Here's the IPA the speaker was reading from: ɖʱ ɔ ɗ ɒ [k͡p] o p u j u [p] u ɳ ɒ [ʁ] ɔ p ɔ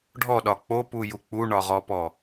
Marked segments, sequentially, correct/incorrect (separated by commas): correct, incorrect, correct